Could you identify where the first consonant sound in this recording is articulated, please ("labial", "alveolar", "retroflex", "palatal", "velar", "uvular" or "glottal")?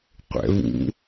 uvular